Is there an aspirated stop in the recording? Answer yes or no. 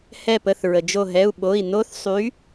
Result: no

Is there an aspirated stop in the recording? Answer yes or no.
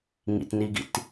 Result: no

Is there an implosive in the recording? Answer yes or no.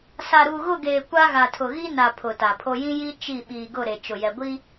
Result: yes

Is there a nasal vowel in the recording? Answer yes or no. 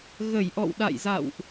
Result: no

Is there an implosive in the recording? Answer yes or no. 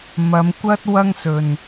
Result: no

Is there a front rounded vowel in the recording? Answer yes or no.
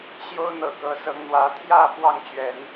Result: no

